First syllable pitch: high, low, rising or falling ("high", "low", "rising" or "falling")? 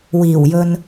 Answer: low